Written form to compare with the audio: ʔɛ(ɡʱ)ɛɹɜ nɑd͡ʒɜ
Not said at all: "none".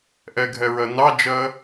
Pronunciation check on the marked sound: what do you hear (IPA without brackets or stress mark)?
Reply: ɡʱ